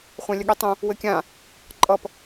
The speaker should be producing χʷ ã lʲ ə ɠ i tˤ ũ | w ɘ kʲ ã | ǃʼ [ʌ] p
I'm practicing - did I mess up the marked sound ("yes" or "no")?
no